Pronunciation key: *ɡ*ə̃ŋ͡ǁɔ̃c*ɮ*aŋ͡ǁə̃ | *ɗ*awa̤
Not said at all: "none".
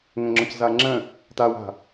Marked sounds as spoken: ŋ, z, t

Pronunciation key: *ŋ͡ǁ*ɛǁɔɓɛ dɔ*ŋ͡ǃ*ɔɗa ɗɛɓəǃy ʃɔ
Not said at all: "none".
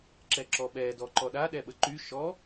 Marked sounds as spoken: ǁ, ǃ

